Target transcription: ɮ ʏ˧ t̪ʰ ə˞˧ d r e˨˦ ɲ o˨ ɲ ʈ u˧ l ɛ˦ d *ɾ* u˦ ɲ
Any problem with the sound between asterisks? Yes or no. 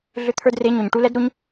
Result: no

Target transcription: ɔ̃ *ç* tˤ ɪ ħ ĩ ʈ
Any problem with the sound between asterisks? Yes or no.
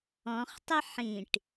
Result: yes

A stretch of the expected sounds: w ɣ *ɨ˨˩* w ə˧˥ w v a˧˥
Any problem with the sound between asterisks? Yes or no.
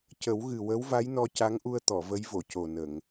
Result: no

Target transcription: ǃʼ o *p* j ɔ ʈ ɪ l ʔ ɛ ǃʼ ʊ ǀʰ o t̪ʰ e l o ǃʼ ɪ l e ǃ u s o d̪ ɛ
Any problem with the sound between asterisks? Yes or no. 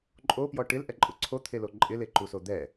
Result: no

